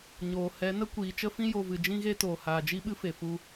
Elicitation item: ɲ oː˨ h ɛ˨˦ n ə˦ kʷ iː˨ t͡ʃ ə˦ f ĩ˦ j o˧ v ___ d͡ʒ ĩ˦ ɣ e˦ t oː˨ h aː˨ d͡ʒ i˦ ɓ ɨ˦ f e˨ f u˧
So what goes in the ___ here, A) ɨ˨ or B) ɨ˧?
A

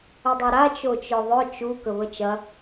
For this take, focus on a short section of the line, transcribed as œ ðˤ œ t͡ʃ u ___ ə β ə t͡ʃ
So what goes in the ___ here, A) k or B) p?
A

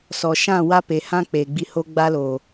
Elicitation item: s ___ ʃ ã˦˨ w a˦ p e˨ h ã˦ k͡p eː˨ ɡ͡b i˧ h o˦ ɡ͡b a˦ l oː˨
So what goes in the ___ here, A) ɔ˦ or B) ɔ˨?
B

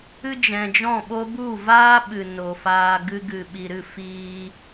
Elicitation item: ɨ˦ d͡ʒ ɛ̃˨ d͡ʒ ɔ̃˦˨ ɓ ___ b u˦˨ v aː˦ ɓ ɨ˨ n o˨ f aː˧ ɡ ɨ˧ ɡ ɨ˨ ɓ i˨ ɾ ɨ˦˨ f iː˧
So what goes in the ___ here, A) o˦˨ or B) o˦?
B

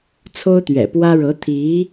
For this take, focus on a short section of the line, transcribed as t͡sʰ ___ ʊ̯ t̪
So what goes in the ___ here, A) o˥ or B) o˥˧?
A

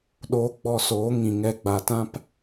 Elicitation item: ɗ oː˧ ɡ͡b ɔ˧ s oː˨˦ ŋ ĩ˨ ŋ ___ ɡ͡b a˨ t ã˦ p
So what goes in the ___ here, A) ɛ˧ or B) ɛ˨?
A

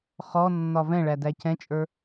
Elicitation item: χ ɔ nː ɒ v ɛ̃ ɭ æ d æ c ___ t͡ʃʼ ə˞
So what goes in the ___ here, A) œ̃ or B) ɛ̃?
B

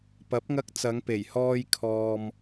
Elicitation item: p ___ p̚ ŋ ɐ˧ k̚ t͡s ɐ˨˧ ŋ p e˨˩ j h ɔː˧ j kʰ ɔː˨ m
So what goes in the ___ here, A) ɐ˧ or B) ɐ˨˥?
B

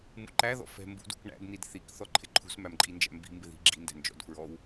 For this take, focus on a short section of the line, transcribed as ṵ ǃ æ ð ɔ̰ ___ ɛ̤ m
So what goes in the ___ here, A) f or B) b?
A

